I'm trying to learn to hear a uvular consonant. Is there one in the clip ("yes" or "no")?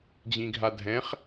yes